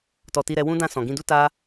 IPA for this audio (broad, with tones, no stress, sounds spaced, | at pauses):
t ɔ˨ t i˧ ɾ ɛ˧ w ũ˦ d ã˦˨ s ɔ̃˨ ɡ ĩ˧ d u˦ t a˦